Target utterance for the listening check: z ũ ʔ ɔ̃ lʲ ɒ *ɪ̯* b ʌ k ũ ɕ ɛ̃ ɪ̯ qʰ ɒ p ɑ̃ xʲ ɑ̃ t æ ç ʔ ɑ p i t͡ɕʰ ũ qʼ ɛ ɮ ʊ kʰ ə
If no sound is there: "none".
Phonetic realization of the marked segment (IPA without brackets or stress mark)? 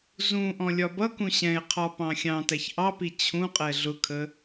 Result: none